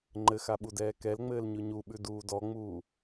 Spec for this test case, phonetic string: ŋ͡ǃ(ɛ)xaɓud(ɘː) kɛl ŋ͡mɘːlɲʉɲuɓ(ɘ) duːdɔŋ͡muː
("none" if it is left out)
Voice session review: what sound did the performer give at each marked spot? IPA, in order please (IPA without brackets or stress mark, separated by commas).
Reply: ɘ, ɛː, ʉ